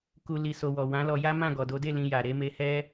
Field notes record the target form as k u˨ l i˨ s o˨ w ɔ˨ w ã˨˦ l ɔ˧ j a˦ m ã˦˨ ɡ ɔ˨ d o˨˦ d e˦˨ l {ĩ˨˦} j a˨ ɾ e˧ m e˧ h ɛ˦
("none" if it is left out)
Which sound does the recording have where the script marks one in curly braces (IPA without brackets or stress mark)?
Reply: ĩ˧